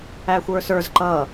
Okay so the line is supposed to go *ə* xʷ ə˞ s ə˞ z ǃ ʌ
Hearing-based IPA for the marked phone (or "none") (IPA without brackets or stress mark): æ